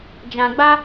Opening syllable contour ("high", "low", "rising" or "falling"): low